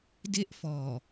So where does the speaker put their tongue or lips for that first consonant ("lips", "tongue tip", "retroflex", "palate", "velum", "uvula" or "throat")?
tongue tip